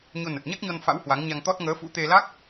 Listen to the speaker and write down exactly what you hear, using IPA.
ɲ o˧ n ə˨˩ t̚ ɲ a˦˥ k̚ ɲ ɔ˧ n f a̰˧˥ w h w a˨˦ ŋ ɲ a˧ ŋ t̪ ɔ˦˥ t̚ ŋ əː˨˦ f ṵ˧˥ t̪ e˧ l a˦˥ k̚

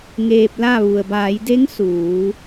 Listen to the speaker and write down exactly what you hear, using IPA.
ŋ eː˧ p̚ l a˥˨ ʋ u˩ ə̯ b aː˩˧ j d e˧˥ ŋ s uː˩˧

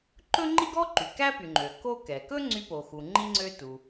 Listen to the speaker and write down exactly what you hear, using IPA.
ǃ ɵ˥ ŋ͡ǃ i˥ ɡ ɔ˥ ǃ y˩ k æ˥ p y˩ ŋ͡ǃ ø˩ k o˥ k ɛ˩ k ɵ˥ ŋ͡ǀ y˥ p o˩ x u˩ ŋ͡ǃ i˥ ŋ͡ǀ ø˥ t u˩

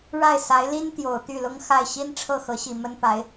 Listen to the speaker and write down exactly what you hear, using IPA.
ɻ a˥˩ ɪ̯ s a˧˥ ɪ̯ l i˥ n t̪ j o˨˩ ʊ̯ t̪ y˥˩ l ʊ˥ ŋ x a˥˩ ɪ̯ ɕ i˥ n ʈ͡ʂʰ ɤ˥˩ x ɤ˧˥ ɕ i˨˩ m ə˥ n p a˧˥ ɪ̯

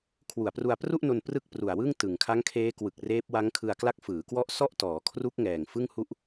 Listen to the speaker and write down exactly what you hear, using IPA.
kʰ w u˨˩ a̯ p r u˧ a̯ p r u˥˩ ʔ n o˧ n p r ɯ˥˩ k̚ p r u˨˩ a̯ w ɯ˥˩ ŋ t ɯ˨˩ ŋ kʰ a˦˥ ŋ kʰ eː˦˥ k w ɯ˨˩ k̚ r eː˦˥ p̚ w a˦˥ ŋ kʰ ɯ˧ a̯ k l a˦˥ k̚ f ɯː˩˦ k w ɔ˦˥ ʔ s ɔ˥˩ ʔ t ɔː˩˦ kʰ r u˦˥ k̚ ŋ ɛː˨˩ ŋ f ɯ˥˩ ŋ h u˥˩ ʔ

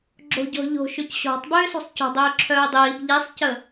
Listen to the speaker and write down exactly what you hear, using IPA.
ɡ͡ǁ o̤ ɟ ɔ̤ ʎ o̤ ʃ ø c ɕ ɔ̤ tˤ b øː s o̤ sˤ c ɔ̤ dˤ øː ǁʰ œː dˤ iː b ʎ i sˤ c ə

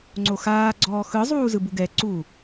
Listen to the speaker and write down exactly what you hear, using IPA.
ŋ͡ǀ o x aː ɡ͡ǀ ɔː x ɯ zˤ uː z ɯ b u ɡ ɛ ǀ uː

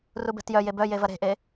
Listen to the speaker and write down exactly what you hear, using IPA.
r u b ɛ̤ t j œ j e b œ j e v ɐ ɾ e̤ ʔ e

